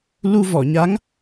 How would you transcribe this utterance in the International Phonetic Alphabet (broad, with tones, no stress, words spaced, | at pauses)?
lu˧vɔ˨˩˨ɲa˧˥ŋ